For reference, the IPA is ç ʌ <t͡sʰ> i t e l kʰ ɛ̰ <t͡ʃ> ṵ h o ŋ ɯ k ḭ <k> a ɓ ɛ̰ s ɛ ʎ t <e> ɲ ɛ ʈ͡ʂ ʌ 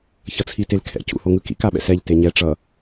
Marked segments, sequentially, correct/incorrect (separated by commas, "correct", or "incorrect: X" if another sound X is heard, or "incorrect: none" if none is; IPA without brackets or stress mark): correct, incorrect: c, correct, correct